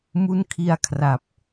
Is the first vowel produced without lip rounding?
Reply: no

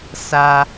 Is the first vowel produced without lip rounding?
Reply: yes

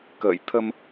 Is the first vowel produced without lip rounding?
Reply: yes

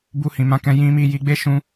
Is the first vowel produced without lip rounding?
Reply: no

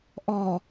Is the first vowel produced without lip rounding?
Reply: no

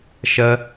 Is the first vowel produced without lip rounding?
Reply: yes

